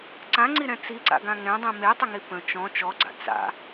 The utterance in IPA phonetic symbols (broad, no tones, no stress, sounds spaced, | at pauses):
ǀ ã ŋ͡ǀ i ɾ ɛ̃ t͡s i ǀ a̰ ɡ ã ŋ ɛ̃ dˤ ĩ m e tˤ ə ŋ i p ə̃ t͡ʃ ɔ̃ t͡ʃ ɔ ɡ͡ǀ a̰ t͡s a̰